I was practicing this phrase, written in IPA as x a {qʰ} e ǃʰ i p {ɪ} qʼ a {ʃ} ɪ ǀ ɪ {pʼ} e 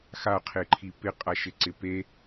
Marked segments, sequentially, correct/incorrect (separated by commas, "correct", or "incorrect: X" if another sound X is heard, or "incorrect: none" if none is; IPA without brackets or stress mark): correct, correct, correct, incorrect: p